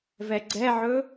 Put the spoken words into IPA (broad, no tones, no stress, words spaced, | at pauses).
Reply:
vɛɡ͡ǀɛʕɵ